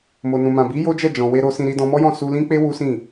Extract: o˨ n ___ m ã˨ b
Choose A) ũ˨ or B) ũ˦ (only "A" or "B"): A